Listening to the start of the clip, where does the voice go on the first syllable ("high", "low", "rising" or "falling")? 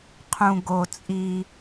low